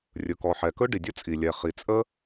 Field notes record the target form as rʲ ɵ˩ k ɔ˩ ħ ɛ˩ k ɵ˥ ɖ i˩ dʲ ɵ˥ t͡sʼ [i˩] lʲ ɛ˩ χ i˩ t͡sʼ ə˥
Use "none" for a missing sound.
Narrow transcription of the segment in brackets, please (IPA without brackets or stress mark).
i˩